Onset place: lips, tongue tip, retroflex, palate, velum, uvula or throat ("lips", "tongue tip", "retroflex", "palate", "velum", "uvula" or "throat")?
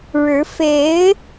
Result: retroflex